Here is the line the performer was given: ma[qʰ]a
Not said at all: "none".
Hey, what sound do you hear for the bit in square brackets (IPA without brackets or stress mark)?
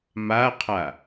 qʰ